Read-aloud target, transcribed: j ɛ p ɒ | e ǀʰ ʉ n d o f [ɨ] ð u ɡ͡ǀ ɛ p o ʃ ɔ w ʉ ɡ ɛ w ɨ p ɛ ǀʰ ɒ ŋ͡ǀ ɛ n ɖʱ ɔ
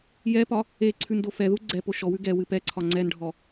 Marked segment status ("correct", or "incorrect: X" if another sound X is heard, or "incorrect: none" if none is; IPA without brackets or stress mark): incorrect: ɛ